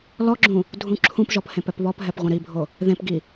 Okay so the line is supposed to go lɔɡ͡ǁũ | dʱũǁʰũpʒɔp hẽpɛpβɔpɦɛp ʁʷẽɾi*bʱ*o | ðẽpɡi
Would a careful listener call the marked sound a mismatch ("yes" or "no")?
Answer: no